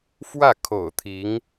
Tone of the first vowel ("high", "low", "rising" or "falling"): falling